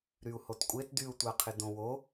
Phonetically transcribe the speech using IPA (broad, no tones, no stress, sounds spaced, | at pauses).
ɾ y u̯ h o t kʷʼ e t d y u̯ tʷ a qʰ ɪ d õ w o